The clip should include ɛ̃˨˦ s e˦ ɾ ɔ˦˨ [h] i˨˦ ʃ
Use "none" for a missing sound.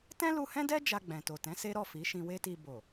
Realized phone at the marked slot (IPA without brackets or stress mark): f